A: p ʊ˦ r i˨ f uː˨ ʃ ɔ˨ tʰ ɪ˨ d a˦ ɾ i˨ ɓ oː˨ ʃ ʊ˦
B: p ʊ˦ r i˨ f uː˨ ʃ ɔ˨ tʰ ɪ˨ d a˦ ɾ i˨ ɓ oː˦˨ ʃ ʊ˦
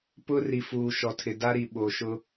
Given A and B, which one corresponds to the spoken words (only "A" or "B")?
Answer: A